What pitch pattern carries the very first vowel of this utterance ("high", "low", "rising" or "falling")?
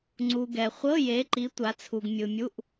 low